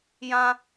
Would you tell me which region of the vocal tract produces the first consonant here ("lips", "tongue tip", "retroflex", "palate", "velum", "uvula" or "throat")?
palate